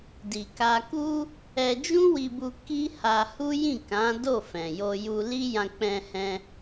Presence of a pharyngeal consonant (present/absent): absent